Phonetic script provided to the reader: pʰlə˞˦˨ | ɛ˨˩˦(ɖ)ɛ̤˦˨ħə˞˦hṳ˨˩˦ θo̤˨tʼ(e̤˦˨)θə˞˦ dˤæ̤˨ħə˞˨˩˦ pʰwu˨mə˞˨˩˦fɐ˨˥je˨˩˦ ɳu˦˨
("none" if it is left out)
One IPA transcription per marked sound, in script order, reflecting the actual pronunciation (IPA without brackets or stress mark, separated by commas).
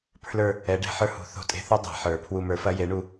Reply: ɖ, e̤˦˨